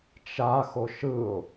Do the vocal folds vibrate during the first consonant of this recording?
no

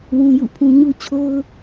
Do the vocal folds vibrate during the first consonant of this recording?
yes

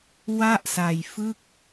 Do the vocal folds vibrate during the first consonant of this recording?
yes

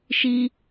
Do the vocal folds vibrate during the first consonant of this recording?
no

